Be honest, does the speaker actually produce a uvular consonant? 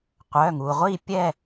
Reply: yes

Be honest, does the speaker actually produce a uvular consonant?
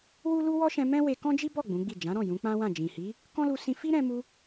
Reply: no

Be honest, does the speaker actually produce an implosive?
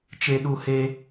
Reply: yes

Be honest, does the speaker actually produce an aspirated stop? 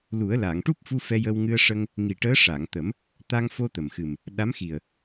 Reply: no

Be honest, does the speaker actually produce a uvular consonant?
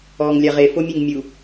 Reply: yes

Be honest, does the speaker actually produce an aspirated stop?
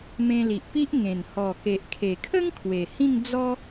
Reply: yes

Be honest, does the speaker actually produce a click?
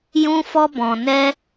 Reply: no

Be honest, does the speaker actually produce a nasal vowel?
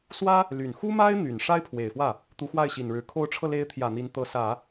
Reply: no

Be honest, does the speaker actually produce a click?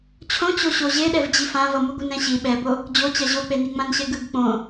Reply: no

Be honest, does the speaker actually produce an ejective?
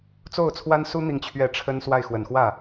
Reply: no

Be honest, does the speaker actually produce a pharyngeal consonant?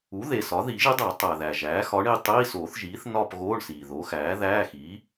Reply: no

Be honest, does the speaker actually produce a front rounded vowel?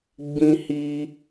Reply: no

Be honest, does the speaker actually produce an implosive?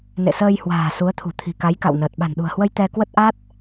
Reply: yes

